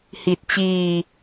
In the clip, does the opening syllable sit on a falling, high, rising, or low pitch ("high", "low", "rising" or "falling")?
low